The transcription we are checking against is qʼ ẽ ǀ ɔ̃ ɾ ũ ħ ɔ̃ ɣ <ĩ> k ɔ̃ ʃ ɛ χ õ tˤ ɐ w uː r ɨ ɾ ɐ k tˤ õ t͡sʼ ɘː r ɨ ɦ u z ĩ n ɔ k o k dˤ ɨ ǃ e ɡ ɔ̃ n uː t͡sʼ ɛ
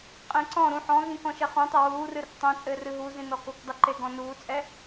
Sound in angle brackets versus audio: correct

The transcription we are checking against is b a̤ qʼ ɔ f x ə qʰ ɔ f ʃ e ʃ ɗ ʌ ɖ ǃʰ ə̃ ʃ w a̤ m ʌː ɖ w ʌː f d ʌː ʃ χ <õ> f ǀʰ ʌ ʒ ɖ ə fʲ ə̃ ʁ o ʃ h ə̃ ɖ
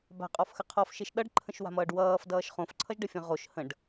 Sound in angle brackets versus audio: correct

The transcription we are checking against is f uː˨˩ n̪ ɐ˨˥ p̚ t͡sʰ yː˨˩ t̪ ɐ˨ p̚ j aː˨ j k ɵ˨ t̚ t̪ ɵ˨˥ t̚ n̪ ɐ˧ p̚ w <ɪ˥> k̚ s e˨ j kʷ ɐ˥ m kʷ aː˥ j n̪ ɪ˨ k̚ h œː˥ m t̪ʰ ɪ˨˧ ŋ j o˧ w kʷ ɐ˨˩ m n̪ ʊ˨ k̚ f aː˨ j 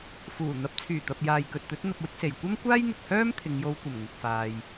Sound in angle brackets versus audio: correct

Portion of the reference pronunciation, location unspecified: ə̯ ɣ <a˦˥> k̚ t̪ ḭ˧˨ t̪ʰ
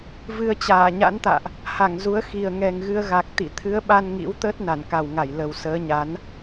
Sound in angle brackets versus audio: incorrect: a˨˩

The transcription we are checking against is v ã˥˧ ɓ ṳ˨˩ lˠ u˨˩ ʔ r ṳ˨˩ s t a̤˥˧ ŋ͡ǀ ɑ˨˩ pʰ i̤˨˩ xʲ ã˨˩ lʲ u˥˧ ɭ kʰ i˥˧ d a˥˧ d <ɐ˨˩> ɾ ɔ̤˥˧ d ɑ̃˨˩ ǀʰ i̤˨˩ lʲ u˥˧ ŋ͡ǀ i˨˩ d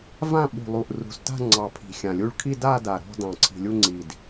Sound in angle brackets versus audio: incorrect: a˨˩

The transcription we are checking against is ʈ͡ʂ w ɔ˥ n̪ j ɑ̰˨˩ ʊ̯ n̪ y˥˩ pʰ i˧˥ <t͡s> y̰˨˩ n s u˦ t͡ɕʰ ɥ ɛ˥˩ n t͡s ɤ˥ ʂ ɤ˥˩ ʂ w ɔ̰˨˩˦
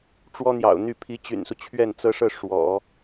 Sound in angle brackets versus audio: incorrect: t͡ɕ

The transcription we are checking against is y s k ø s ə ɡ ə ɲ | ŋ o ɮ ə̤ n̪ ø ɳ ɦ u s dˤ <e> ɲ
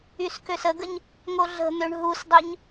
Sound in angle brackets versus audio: incorrect: ø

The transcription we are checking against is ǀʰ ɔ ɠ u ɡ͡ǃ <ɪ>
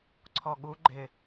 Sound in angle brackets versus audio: correct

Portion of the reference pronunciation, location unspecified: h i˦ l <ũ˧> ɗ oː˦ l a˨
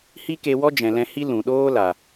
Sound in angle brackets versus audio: incorrect: ũ˨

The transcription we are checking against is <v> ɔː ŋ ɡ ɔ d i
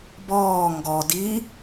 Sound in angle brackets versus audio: incorrect: b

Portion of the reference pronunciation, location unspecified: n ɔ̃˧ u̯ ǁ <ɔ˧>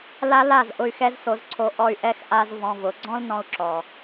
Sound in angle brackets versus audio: incorrect: ɔ˨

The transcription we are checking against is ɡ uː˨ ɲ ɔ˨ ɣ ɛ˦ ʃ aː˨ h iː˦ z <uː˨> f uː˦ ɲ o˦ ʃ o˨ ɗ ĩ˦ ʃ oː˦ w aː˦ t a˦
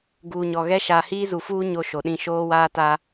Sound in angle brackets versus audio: incorrect: u˨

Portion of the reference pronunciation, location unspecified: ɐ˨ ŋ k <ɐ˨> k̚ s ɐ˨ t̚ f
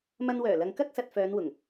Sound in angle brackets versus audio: incorrect: ɐ˥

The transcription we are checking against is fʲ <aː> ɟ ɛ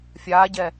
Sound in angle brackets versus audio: correct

